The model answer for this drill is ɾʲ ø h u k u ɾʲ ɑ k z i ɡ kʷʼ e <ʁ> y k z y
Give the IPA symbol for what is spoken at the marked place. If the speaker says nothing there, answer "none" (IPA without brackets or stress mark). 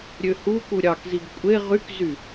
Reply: ʁ